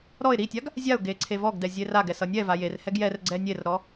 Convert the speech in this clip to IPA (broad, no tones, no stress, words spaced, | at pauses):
ɾɔɪ̯ ɾitʲaɡ | zʲaʊ̯ɡe ǀʰevɔɡdɛ zʲeraɡɛ sʌnʲɛva jerhɛɡ jɛrɡ͡ǀɛ nʲerɾɔ